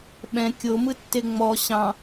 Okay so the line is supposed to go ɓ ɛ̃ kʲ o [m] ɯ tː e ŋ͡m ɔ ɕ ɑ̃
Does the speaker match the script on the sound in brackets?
yes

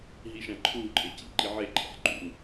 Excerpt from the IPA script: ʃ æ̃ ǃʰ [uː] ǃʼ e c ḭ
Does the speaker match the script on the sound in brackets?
yes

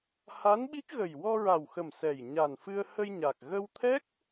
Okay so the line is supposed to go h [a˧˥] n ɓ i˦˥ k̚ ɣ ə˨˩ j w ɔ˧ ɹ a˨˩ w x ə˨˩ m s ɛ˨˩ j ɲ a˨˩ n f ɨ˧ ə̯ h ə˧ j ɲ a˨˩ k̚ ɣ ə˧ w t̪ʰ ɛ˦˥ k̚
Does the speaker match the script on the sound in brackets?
yes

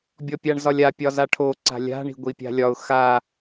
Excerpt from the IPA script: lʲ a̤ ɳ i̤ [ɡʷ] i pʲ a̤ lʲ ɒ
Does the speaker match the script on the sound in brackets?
yes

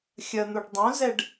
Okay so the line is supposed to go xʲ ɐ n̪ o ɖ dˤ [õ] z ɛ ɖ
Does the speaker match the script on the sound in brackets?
yes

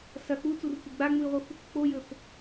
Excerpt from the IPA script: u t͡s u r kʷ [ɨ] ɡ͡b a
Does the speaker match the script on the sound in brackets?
yes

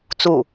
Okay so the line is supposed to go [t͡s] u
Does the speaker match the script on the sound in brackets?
yes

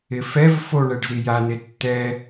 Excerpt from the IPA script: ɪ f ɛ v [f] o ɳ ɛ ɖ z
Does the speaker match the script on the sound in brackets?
yes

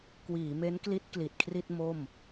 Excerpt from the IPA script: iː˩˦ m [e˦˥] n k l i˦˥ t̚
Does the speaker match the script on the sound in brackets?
yes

